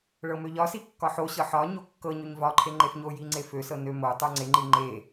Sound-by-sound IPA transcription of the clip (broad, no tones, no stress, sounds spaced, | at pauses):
ɭ ɤ m ø ʎ ɒ s i kː ɒ ħ o ɕ ɤ ħ ɒ ɲ o kː ɤ ɲ ø ɲ v ɒ ǃʰ e ŋ͡ǃ e f ɲ o j i ŋ͡ǀ e f ø s ɤ n ø m o tˤ o ŋ͡ǀ e ŋ͡ǃ i ŋ͡ǃ e